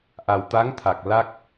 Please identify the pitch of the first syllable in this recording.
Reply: low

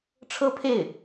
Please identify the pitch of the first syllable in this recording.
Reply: high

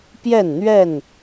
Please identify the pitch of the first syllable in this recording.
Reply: falling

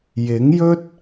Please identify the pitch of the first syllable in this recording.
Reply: rising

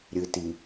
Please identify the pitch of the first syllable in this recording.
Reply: low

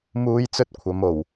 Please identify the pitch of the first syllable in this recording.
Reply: high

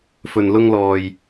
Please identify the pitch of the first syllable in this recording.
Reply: low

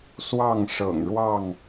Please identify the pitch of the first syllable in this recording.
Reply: falling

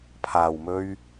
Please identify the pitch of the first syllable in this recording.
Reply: low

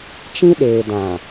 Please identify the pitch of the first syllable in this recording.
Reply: high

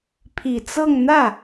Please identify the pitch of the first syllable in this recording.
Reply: low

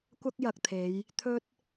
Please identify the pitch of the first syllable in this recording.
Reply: high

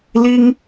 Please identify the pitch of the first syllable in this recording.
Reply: high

